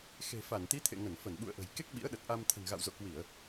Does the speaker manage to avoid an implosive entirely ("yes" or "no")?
no